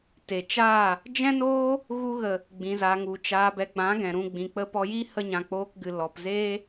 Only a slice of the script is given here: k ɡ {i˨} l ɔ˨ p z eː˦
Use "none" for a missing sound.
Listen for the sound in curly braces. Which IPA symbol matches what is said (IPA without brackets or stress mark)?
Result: ɨ˨